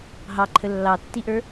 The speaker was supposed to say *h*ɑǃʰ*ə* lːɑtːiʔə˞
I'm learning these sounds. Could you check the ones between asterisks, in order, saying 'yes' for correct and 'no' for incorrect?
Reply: no, yes

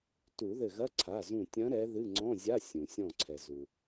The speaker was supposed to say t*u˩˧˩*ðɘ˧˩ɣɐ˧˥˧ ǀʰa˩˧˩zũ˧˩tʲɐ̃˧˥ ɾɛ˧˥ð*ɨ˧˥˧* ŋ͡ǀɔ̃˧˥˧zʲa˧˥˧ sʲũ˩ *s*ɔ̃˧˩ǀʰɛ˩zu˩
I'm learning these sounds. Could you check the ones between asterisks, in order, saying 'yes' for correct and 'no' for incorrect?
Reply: no, yes, no

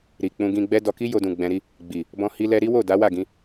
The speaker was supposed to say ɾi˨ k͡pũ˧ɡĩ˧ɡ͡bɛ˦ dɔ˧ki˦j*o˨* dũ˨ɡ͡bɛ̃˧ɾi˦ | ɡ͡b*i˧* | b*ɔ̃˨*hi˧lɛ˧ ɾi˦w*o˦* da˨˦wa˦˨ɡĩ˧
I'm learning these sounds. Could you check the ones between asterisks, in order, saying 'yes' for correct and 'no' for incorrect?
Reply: no, no, no, no

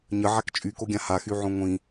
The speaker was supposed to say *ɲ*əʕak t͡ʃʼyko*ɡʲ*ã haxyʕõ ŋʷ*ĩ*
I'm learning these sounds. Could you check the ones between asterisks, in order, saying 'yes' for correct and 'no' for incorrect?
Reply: yes, yes, yes

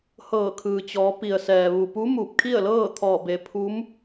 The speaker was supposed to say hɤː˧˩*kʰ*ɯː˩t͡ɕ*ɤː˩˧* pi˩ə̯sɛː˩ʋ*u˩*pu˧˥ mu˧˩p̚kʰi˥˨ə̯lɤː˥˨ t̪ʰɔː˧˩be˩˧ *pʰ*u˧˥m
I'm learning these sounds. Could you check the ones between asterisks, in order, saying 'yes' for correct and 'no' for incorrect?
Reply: yes, no, yes, yes

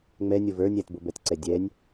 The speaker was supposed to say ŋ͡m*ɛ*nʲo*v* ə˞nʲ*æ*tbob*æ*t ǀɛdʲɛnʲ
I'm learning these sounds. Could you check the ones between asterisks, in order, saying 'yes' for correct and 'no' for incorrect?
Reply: yes, yes, yes, no

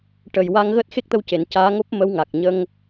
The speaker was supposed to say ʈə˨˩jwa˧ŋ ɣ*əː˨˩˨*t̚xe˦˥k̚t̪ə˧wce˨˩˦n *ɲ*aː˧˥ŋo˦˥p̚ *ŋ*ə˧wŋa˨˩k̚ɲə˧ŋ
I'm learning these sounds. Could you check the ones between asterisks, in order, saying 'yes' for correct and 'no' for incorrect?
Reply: no, no, no

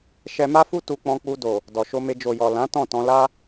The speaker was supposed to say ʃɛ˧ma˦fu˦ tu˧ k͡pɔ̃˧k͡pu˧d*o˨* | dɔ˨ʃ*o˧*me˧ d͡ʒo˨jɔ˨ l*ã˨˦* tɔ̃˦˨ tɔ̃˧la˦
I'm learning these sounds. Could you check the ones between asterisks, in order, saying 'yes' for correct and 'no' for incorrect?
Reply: yes, yes, yes

